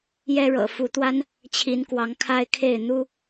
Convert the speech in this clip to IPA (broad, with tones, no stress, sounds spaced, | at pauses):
j ɛ˦ ɻ ɤ̰˨˩ f u˨˦ t̪ w a˦ n | t͡ɕʰ i˨˦ n k w ɑ˨˦ ŋ kʰ a˦ ɪ̯ kʰ e˥˨ ɪ̯ n̪ u˦